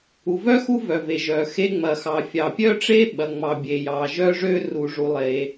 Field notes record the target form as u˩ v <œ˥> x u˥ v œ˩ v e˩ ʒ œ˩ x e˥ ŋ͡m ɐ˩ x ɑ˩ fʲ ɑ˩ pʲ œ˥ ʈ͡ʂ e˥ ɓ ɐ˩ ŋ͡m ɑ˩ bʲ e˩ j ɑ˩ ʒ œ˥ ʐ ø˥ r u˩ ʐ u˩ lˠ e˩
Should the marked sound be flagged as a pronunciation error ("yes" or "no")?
no